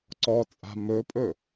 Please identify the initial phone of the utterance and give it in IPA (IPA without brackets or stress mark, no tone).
ǀ